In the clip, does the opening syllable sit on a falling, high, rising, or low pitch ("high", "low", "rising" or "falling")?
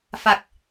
low